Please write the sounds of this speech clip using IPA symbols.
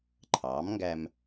ǃʰɑː˩˥mŋɡæ˧m

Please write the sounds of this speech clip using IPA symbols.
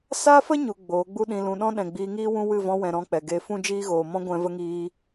sa˦fə˦ɲu˨ ɡ͡boː˨˦ɡ͡bu˦ɗĩ˧ lũ˨ɗɔ̃˦ɗɛ̃˨ ɡ͡biː˧ŋiː˦wũ˦ wɨ˦˨vɔ̃˧wɛ̃˨ ɾɔ̃˧k͡pɛ˨ɡe˧ fũ˦d͡ʒiː˦ɣoː˨ mɔ̃˧ɡʷɛ̃˨və˧ŋiː˧

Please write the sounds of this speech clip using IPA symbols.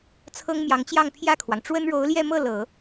t͡sʰɤ˥ŋmjɑ˧˥ŋt͡ɕjɑ˥˧ŋ pʰjä˥˩kʰwɑ˩ŋ ʈ͡ʂwə˥nɻo˧˥ʊ̯ljɛ˥˧mɤ˥˩ lɤ˨˩˦

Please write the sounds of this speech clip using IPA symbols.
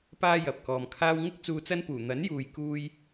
paː˥jɐ˨p̚kɔː˨mkʰaː˥w ŋɪ˥k̚ t͡suː˧t͡sɐ˥npuː˨˩ n̪ɐ˨˥njuː˨jkuː˧j

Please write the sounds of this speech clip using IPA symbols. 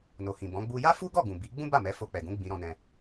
no˨hĩ˨ bɔ̃˨˦ɡ͡bu˦ ja˦fu˦ɡɔ˦˨ɡũ˨ bi˨˦ ɡ͡bũ˦ba˦˨mɛ˨˦ fo˧k͡pɛ˨ɡũ˨˦ ɡ͡bĩ˧ɾɔ̃˧nɛ̃˧

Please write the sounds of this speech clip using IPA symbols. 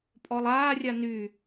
pʼɔlˠaːrʲa ny

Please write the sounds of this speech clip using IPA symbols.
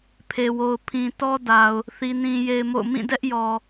pʰe˨wo˨ʊ̯ pʰĩ˨ tɔ˦da˨ʊ̯ | θi˦nĩ˦je˦ɪ̯mo̰˦˨ʊ̯ mĩ˦˨dɛ˦ʔjɔ˨

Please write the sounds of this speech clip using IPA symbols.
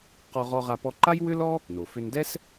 qɔ˧ʁɔ˧ʁa˧ pɔ˧ǃa˥j wʏ˥lɔ˥ | no˩fʏ˧ndɛ˥s

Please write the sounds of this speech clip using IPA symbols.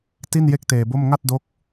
ti˥˩nje˥˩k̚teː˧bo˥˩m ŋa˥˩t̚do˦˥k̚

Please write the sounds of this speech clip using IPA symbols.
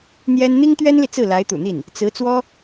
n̪jɛ˥n n̪i˥ŋt̪ɥɛ˥nli˨ t͡sɹ̩˥˩la˧˥ɪ̯t̪ṵ˨˩n̪i˥˩n | t͡sɹ̩˧˥ t͡swɔ˥

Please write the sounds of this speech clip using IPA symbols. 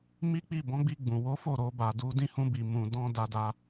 mi˦k͡pi˦˨ bɔ̃˨˦ɡ͡bi˧ɡ͡bũ˨ wo˨˦fo˦˨ ɾo˧ba˨du˧dĩ˦ hũ˧bi˨ mũ˨dɔ̃˧ da˧da˧

